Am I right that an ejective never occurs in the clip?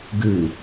yes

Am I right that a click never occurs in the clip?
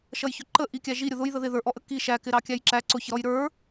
no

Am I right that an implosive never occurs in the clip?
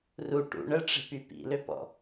yes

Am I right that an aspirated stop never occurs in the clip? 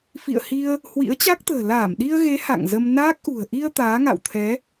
no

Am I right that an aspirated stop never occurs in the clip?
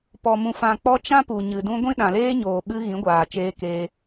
yes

